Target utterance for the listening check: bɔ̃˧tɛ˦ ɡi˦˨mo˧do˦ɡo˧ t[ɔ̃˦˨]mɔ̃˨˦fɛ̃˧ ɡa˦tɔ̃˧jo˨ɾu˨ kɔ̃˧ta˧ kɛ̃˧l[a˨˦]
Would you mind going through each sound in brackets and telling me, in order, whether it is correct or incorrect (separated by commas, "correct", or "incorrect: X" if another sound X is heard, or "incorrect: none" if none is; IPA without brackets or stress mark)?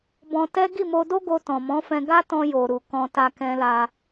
incorrect: ɔ̃˨, incorrect: a˧